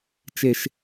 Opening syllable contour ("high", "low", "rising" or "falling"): high